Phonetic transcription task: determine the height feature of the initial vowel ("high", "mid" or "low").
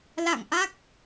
low